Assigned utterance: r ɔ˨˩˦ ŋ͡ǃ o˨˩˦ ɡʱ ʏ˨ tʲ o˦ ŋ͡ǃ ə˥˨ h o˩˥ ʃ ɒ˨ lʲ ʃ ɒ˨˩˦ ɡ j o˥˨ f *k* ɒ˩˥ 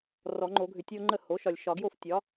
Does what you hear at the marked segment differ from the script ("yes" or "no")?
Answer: yes